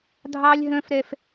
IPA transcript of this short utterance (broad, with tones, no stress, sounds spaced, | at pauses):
dʱ ɑ˦ lʲ ɦ œ̃˦ f ɾ ɛ˦ f